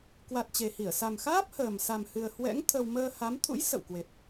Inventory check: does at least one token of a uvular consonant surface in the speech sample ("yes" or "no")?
no